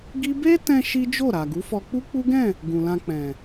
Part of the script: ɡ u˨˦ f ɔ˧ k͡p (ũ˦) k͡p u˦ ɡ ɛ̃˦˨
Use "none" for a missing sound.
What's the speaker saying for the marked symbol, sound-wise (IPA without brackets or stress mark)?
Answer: u˦